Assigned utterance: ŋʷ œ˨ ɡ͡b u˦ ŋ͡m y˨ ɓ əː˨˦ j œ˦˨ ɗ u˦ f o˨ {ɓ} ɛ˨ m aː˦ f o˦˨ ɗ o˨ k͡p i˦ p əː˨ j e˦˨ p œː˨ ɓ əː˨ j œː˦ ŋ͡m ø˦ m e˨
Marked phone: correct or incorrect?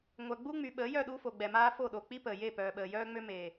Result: incorrect